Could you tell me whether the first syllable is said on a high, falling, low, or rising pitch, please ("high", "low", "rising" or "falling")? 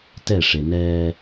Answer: falling